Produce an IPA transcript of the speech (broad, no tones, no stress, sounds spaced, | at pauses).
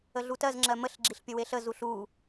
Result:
ə ɮ u t ɜ z ŋ͡ǁ ɜ m ə ɬ ɡ͡ǁ i ɬ pʲ ə w e ɬ ə z u ɬ u